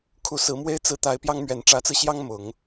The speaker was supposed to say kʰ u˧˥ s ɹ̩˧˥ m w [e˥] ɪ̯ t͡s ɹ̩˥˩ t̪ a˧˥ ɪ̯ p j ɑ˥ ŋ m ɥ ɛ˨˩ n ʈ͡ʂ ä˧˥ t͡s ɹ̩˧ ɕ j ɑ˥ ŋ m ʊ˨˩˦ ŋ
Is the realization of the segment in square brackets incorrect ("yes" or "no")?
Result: no